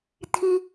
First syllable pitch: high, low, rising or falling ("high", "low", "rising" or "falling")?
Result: high